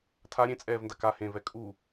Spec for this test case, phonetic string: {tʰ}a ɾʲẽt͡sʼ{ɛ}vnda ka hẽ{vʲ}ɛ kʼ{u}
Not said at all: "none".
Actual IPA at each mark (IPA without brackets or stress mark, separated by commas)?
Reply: tʰ, ɛː, v, u